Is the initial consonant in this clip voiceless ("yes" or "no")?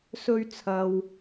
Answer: yes